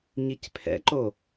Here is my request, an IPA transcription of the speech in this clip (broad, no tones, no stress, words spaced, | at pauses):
ɲicpʰɛ̰ǃo